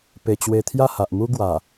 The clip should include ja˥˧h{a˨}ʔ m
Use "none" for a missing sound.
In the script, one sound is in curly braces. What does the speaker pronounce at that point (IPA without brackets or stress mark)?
a˨